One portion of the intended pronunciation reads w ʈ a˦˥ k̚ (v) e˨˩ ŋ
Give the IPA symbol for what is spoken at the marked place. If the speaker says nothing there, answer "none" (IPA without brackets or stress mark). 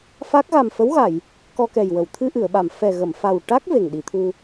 v